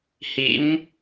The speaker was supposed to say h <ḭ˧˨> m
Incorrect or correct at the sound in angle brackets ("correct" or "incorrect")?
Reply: incorrect